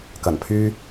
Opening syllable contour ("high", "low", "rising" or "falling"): low